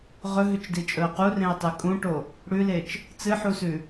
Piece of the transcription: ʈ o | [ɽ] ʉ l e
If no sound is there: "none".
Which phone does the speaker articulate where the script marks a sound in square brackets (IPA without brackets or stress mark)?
ɽ